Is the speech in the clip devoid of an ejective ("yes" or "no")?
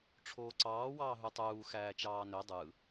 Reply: yes